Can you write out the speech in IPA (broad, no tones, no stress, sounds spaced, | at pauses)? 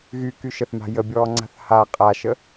ɣ y k y ʃ ə θ m a̤ j ə bʲ ɔː ŋ͡ǀ a̤ θ h a qʼ a ʃ ə